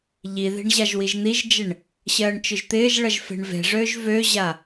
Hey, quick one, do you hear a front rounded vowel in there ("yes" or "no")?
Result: yes